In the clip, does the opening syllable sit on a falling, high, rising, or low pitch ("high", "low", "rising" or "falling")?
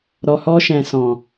low